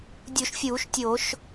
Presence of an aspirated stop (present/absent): absent